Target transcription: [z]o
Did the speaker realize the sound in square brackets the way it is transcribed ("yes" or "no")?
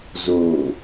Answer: yes